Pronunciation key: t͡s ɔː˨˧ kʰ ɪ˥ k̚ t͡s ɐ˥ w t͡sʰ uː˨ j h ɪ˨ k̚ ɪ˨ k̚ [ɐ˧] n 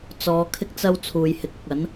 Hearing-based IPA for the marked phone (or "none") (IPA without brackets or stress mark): ɐ˨˥